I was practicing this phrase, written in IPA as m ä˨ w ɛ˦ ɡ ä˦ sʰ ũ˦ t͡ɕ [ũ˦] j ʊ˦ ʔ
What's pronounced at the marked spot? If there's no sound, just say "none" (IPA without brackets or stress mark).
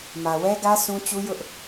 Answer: u˦